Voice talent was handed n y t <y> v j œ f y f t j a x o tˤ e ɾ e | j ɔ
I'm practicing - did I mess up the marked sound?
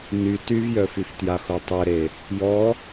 no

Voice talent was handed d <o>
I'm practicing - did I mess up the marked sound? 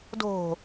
yes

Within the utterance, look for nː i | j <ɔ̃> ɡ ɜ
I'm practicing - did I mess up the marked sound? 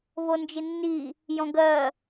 no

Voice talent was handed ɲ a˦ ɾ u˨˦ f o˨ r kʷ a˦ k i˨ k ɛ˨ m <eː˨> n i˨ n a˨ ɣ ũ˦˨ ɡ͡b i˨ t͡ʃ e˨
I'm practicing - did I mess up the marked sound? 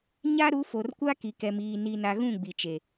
yes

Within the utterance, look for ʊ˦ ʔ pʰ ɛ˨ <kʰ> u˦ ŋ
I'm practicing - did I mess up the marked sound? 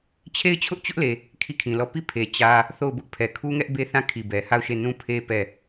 no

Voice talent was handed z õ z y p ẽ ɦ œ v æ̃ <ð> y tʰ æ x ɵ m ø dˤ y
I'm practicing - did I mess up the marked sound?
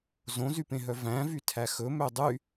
yes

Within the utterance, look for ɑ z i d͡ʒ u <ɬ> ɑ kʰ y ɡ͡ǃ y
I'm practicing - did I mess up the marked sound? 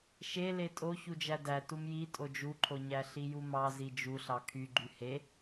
no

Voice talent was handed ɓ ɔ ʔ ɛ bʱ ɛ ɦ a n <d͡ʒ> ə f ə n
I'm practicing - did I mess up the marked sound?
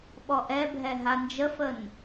no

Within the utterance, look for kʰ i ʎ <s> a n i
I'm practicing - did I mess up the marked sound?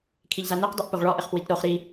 yes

